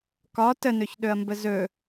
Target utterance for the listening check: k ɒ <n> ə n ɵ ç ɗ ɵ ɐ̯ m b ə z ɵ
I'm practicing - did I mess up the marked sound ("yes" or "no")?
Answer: yes